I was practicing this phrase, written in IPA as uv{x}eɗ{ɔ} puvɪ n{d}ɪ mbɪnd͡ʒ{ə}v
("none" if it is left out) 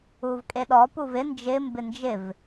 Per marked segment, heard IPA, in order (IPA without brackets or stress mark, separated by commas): kʼ, ɔ, d͡ʒ, ɪ